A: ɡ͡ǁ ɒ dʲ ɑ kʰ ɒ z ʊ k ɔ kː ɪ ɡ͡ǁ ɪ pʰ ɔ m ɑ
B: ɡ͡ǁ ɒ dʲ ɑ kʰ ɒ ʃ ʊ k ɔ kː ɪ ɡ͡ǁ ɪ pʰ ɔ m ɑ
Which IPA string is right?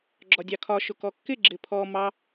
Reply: B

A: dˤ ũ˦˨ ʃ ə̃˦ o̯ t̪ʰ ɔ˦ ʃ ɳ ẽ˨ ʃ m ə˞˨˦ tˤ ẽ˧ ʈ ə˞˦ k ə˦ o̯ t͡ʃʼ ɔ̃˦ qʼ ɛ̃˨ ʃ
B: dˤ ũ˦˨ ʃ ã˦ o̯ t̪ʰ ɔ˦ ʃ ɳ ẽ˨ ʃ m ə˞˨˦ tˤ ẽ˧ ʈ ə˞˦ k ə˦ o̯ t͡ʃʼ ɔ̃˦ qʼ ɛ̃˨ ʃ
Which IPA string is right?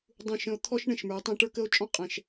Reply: A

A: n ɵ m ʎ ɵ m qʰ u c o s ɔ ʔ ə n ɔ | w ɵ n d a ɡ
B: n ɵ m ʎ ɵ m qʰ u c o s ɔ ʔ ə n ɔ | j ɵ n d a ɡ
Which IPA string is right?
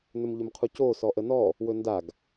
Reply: A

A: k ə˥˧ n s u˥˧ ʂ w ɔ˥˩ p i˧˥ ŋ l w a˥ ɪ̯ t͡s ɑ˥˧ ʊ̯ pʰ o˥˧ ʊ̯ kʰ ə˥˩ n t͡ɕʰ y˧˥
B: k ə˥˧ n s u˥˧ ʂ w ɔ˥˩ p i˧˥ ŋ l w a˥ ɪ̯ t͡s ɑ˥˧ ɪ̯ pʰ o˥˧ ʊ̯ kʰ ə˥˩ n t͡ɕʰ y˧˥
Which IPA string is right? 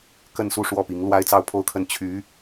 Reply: A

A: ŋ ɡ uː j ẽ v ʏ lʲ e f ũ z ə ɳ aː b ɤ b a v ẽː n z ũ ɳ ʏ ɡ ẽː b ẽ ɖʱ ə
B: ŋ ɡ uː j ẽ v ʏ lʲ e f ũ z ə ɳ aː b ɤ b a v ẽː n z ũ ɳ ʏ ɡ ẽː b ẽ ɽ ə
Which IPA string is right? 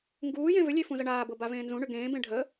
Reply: A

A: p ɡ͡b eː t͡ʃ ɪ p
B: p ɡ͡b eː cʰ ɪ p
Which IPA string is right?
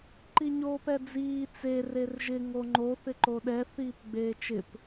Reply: A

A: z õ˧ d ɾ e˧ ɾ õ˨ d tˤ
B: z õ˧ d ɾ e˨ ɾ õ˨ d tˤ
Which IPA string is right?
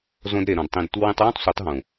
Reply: B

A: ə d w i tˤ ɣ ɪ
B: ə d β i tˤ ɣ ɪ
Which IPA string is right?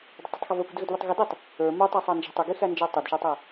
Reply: B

